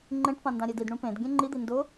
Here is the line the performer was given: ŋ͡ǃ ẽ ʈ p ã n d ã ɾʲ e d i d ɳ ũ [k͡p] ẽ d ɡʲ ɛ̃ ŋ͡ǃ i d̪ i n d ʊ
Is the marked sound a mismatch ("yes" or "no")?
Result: yes